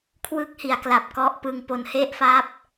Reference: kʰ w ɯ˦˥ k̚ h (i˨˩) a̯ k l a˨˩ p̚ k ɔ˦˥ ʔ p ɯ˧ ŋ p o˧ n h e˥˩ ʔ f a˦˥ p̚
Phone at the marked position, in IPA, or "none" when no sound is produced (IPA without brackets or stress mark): i˨˩